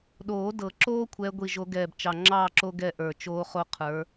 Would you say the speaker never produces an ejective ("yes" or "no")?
yes